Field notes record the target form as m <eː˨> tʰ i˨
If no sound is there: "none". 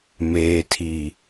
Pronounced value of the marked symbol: eː˨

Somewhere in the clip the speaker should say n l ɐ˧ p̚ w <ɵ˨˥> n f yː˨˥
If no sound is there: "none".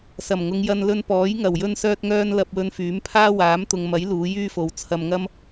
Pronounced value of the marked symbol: ɵ˧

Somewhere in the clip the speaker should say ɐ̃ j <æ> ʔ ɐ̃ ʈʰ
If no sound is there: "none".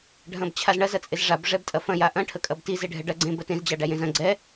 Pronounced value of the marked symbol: a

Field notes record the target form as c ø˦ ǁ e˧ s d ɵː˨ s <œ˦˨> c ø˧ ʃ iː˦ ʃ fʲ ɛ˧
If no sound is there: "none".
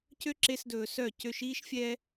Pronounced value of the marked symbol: œ˦˨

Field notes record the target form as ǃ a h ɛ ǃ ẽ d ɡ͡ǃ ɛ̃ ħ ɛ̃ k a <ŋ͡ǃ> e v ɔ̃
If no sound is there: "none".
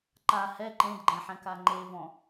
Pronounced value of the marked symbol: ŋ͡ǃ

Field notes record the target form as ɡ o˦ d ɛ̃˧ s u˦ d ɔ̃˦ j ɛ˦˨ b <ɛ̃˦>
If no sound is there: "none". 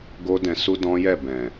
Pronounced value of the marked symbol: ɛ̃˨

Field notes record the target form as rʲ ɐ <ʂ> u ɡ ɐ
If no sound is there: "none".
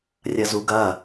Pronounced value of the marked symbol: z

